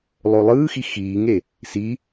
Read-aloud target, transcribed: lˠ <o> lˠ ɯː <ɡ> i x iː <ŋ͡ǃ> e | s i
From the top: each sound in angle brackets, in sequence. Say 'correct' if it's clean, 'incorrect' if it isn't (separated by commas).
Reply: correct, incorrect, incorrect